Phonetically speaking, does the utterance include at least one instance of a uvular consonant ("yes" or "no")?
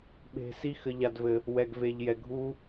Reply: no